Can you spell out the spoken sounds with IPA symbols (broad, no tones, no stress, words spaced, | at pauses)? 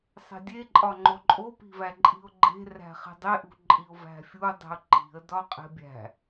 sˤe̤dʲe ǃʼɒŋ͡ǃoǃʼo pi̤væǃʼi̤ʊ̯ɡ͡ǃe̤ ræ̤χi̤dˤe ʔṳǃʼiʊ̯væ̤fʲu dˤi̤ʊ̯ǃi̤ə̯ dɒqʼe̤bʲæ̤